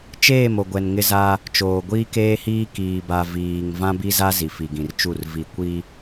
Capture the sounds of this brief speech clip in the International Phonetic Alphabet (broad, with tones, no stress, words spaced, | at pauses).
t͡ʃeː˦˨mo˨ɡʷɛ˨n ŋɪ˦za˦ | t͡ʃoː˨ɡʷiː˦keː˦hiː˦ kiː˨ba˨ viː˨ŋ vã˦bi˦za˦ zi˨fi˨ɡĩ˨rt͡ʃu˦˨r vi˨ kʷi˦